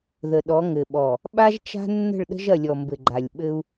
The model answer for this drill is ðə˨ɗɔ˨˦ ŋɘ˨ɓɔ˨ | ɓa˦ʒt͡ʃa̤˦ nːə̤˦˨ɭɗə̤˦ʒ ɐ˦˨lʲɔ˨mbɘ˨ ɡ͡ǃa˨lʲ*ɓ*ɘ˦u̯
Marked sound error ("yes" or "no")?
no